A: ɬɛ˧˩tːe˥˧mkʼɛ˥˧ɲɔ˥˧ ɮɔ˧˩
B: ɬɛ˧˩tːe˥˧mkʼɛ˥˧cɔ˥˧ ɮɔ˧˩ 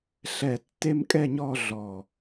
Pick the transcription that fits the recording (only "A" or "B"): A